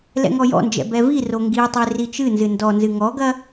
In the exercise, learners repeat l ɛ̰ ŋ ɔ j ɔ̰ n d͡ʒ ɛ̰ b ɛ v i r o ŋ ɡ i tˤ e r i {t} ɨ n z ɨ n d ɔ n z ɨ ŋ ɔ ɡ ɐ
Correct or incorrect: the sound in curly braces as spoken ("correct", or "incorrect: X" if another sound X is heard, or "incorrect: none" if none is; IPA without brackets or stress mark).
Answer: incorrect: t͡ʃ